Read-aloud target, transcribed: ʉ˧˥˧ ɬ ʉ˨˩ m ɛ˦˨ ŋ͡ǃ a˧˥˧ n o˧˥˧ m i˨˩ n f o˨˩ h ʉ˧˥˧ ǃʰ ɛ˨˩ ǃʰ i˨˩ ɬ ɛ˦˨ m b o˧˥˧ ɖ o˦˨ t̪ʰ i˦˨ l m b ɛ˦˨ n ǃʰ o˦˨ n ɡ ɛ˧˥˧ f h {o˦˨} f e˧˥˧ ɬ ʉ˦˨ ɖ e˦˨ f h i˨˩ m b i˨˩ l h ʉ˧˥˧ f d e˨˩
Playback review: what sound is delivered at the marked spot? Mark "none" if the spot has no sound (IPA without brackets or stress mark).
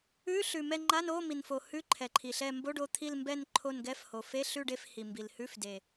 o˨˩